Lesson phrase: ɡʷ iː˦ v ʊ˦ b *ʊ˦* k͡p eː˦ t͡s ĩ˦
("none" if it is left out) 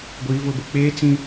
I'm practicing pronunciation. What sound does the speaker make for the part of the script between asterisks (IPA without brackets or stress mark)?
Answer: ʊ˦